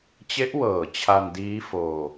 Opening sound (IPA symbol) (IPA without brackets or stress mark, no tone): t͡ɕ